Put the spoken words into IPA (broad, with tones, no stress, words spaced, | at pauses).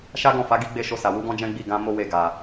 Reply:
ʃa˦ɡɔ̃˦˨fa˨˦ ɡi˦ɡ͡be˦˨ʃo˧sa˨ wu˨˦ɡɔ̃˦d͡ʒɛ̃˦ɡ͡bi˦˨ ɡã˧ mo˦we˦˨ ɡa˨